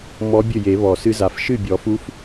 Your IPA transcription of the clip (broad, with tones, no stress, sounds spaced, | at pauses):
m ɔ˧˥ bʲ ɘ˥˩ j e˨˩˦ β ɔ˨˩˦ s ɨ˧˥ z a˩˥ f ʃ ɨ˥˩ bʲ ɔ˨˩˦ f u˧˥ f